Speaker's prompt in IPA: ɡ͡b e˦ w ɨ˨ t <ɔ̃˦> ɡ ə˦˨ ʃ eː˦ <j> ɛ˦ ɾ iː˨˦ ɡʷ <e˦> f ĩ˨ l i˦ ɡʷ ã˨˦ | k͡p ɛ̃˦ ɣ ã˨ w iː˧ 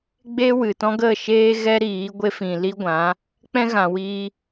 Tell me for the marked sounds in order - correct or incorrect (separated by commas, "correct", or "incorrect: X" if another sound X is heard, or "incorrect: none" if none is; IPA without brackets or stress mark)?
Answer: correct, incorrect: ɣ, correct